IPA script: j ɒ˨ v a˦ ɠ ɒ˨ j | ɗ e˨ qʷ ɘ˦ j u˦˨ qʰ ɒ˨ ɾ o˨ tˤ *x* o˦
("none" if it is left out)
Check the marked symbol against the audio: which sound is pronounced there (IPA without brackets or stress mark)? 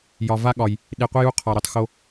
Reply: x